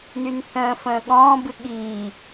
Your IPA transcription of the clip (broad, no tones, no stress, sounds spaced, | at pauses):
n y n θ ə̃ː f ə̃ː ɠ ɔ̃ː b ɨ ɠ iː